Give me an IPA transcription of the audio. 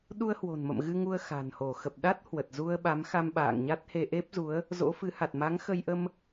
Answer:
ɗ u˧ ə̯ h w o̤˨˩ n m ə̰˧˨ m ɣ ɨ˧ ŋ u˧ ə̯ x a̤˨˩ n h o˧˩ x ə˨˩ p̚ ɗ a˦˥ t̚ h w ə˨˩ t̚ z u˧ ə̯ ɓ a˨˦ m x a˧ m ɓ a̰ː˧˨ ŋ ɲ a˦˥ t̚ h e˧ ʔ e˦˥ p̚ z u˨˦ ə̯ | z o̰˧˥ f ɨ˨˦ h a˨˩ t̚ m a˨˦ ŋ x ə˧ j ʔ ə˧ m

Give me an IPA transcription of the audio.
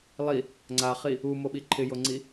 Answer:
lˠ i | ŋ͡ǀ a χ i | u m o ɓ i ǃʰ ɪ j o ŋ͡ǀ i

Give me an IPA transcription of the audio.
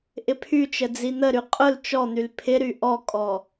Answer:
ʔ ɪ pʰ y t͡ʃ ə d͡z i n̪ ə ɾ y qʼ ʊ l t͡ʃ ɔ n̪ y l pʰ ɪ ɾ y ʔ ɔ kʼ ɔ

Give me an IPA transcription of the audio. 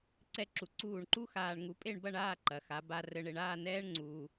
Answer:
ǀ ɛ˧ ǁ u˩˧ ǀ uː˧˩ ɳ ǃ u˥ x aː˧ ɳ ŋ u˧ pʼ e˥˧ ɳ b ɐ˥˧ ɳ aː˥˧ ǃ ɐ˩˧ x a˩˧ b a˧ r ɘ˧ ɳ e˧ ɳ aː˥˧ n ɛː˥ ɳ ŋ͡ǀ uː˧

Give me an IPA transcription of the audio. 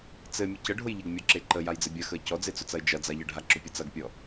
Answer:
t͡s ɘ mʲ ɐ c ə ɖʱ ʊ j ʎ ə ɡ mʲ ɔ ǁ e ǃ ə j a j d͡z ɘ bʲ ɐ x ə ɪ̯ c ɔ d͡z e t͡s ʊ t͡s ɐ ɪ̯ d͡ʒ ɐ d͡z a ʎ ə ɖʱ a ǁ ʊ pʲ ə t͡s ɐ ɡ pʲ ɔ

